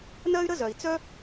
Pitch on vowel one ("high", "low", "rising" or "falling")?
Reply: high